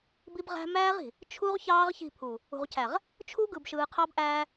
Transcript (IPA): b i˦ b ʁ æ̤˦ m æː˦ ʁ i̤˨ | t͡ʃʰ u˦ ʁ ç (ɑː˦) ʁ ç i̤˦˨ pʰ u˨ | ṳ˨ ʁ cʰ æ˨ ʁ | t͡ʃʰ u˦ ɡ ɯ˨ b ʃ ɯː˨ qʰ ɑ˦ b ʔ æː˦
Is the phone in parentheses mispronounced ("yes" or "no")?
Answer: no